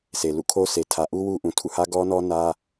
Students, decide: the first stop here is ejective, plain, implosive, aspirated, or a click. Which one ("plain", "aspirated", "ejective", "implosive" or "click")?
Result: aspirated